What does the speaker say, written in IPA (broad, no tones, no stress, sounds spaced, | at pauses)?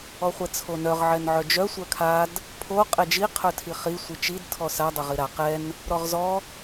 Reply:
ɔ χʷ ɛ t͡sʰ o n œ ʁ ʕ ɛ n ʕ œ d͡ʒ œ sʷ œ kʰ a d | pʰ o qʼ ɛ d͡ʒ i qʰ œ tʰ i χ i sʷ i t͡ʃ i d tʰ ɔ s a dˤ ɛ ʁ i ɾ a q ɛ n | ɾ ɔ ʁ z ɔ